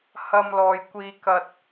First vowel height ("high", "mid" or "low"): low